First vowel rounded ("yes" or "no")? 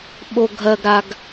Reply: yes